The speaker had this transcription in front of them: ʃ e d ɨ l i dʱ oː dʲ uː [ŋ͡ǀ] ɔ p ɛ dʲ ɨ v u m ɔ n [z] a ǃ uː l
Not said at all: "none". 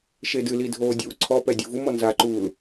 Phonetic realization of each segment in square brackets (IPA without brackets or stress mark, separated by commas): ǀʰ, z